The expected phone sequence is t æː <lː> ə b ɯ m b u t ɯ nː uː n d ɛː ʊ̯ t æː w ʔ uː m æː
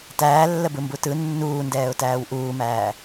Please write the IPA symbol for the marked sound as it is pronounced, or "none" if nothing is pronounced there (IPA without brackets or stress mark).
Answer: lː